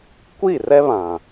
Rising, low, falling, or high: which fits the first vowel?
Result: falling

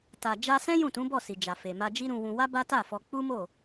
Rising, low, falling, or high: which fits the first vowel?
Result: low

